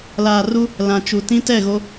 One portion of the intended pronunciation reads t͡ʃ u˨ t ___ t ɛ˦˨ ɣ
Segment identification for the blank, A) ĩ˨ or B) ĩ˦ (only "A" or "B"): B